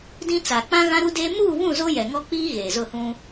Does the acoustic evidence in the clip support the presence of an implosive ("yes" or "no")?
no